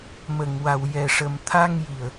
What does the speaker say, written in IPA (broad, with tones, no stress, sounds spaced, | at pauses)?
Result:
m ə˨˩˨ ŋ w a˨˩ w j ɛ˨˩ ʂ ə˨˩ m t̪ʰ a˧ ŋ j i˨˩ ə̯